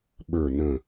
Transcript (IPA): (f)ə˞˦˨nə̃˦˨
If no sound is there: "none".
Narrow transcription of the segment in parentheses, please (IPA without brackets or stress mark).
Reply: ɓ